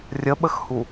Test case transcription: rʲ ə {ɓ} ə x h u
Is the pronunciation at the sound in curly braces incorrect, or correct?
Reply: correct